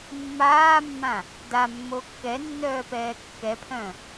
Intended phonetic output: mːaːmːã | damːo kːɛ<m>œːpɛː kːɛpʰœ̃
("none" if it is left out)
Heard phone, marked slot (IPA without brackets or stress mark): nː